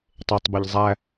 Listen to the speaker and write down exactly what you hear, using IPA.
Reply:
tˤetˤbeʎ zˤæ

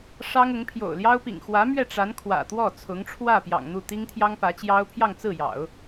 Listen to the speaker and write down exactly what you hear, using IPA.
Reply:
ʂɑ˥ŋʊ˧˥ŋ pʰjo̰˨˩ʊ̯ljɑ˥ʊ̯pḭ˨˩ŋ xwä˧˥mɥɛ˥˩ ʈ͡ʂa˧˥n kʰwä̰˨˩t̪wɔ˥˩ t͡sʰʊ˧˥ŋʈ͡ʂʰwä˥˩ pjɑ̰˨˩ŋn̪u˥˩ t̪i˥ŋt̪ʰjɑ˥ŋpä˧˥t͡ɕjɑ˥ʊ̯ pʰjɑ˥˧ŋt͡sɹ̩˥˩jɑ̰˨˩˦ʊ̯

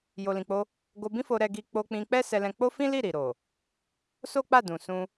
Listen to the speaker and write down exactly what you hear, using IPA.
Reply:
jo˨lĩ˨k͡po˧ | ɡo˧bĩ˦fo˧ ɾɛ˦ɡi˦ k͡po˧k͡pĩ˧k͡pɛ˦ sɛ˧lɛ̃˧k͡po˦ fĩ˦li˦˨ ɾi˨ɾo˨ | so˦k͡pa˦˨ dũ˨sũ˧

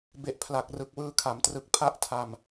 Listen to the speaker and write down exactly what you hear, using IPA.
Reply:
be˨˩ʔpʰla˨˩k̚ rɯ˨˩k̚wɯː˧kʰa˩˦mtrɯ˨˩k̚ pʰa˦˥ʔtʰa˧m

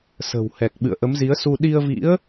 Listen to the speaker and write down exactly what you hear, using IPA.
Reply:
sə̤˨˩whɛ˨˩k̚ ɓɨ̰˧˨ə̯ʔə˨˦mzi˨˦ə̯su˧ ɗi˧ə̯vḭ˧˥ə̯

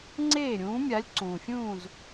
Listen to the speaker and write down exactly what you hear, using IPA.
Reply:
ŋ͡ǀeː˥˨ɾʲũː˨˥mʲa˨˥lʲǀũː˩ fʲũː˥˨z

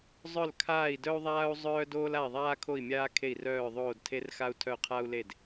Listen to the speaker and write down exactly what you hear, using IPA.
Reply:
zˤœ˥˩lkʰaː˥˩i̯dœ˥u̯ ðˤaː˥u̯zˤœː˥ doː˥la˥˩i̯ðˤaː˥kʰo˥˩i̯ mʲaː˥kʰe˥˩i̯rœː˥˩ ðˤoː˥˩dtʰe˥rxa˥u̯ tʰœ˥˩qʰa˥u̯le˥˩d

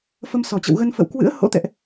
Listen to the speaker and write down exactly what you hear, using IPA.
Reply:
fə˧msɔ˨˩t͡ɕə̰˧˨wɣə˧n fə̰˧˨wkwɨ̰˧˥ə̯ ho̰˧˥t̪ɛ̰˧˨ʔ

